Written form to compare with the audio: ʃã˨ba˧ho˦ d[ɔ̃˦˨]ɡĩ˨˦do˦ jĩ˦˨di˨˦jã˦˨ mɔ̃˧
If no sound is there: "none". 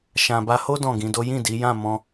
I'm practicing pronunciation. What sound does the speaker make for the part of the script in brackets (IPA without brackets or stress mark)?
ɔ̃˦˨